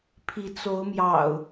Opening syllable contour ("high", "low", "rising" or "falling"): rising